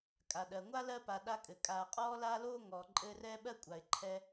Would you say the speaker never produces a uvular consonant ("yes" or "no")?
no